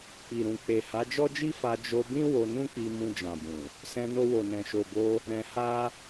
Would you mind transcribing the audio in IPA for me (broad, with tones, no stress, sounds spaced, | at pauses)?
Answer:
k͡p i˨ ɾ ũ˨ k͡p e˨ h a˨˦ d͡ʒ ɔ˦ d͡ʒ i˦ f a˧ d͡ʒ o˧ b ĩ˦ w o˧ n ũ˦ k͡p i˧ m ũ˧ d͡ʒ ã˨ b ũ˨ | s ɛ̃˧ n o˧ w o˨ n ɛ̃˨ ʃ o˨ b o˧ | ɾ ɛ̃˧ h a˦